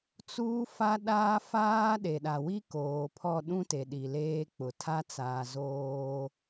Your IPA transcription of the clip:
t͡s uː˦ f a˦ ɗ aː˦ f aː˦ ɗ e˨ ɗ a˨ w i˦ k oː˨ pʰ ɔ˦˨ ɗ ũ˦ t e˨ ɗ i˨ l eː˦ k͡p ʊ˨ tʰ a˦ t͡s aː˨ z oː˦

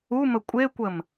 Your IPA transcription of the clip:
u m ə kʷʼ e kʷ ə m

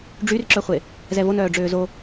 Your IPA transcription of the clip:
ɖ͡ʐ y r ǁ œ χʷ e | z ɛ v o n œː ɖ͡ʐ øː z o

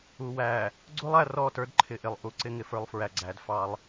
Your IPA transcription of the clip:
u˨ w æ˨ | ɡ͡ǀ u˦ lˠ æ˨ r ɔ˦˨ t ə˞˦ d ǃʰ ɪ˨ ʔ ɪ˨ lˠ ʔ u˨ ǀ ɪ˦ ŋ ɪ˨ f ə˞˦ lˠ f ɹ æ˨ ɡ͡ǀ æ˨˦ d f ɑ˦ lˠ

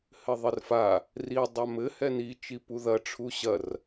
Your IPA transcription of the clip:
h ɘ ðˤ ɘ r f a | r i dˤ a m ɘ h ɛ n i t͡ʃ i p u ð ɐ ʈ͡ʂʰ u ɕ ɐ r

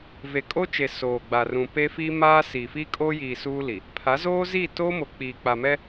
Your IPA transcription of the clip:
v e˨ kʼ o˦ t͡ʃ e˨ s oː˨ ɡ͡b a˨ r ũ˨ p e˦ f i˦ m aː˦ s iː˨ f i˦ kʼ oː˦ j iː˨ s uː˦ l i˨ | pʰ a˨˦ z oː˦ z iː˦˨ t oː˦ m o˨ k͡p iː˨ k͡p a˨ m ɛ˦

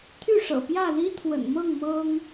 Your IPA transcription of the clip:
t̪ʰ y˥˨ ʂ ɤ̰˨˩ p j ä˥˨ l i˦ t̪ʰ w ə̰˨˩ n m ɤ˥˨ ŋ m ɤ˦ ŋ

